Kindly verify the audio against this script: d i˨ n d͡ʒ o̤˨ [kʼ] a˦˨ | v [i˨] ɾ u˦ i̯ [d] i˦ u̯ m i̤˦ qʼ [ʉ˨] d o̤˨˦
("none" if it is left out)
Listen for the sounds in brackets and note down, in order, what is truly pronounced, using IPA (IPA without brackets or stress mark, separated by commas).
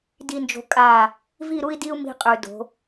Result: kʼ, i˦˨, d, ʉ˨